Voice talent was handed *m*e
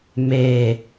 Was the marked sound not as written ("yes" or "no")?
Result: no